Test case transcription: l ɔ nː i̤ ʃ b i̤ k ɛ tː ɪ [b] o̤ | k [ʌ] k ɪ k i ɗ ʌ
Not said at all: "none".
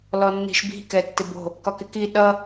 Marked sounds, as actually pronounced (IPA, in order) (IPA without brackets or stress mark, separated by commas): b, ɒ